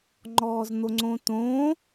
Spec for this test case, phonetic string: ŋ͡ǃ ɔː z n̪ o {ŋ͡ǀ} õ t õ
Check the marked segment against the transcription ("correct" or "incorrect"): correct